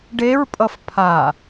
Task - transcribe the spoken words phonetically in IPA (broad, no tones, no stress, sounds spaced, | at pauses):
ɖ e ɹ pʼ ʌ f pʰ a